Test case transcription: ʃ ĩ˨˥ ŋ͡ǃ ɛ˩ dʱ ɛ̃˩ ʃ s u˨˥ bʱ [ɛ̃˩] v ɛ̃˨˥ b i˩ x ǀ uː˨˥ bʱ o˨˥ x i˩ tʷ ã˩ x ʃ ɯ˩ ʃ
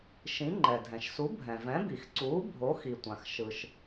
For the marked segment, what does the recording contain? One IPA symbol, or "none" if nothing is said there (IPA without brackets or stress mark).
ɛ̃˩